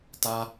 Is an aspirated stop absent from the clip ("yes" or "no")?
yes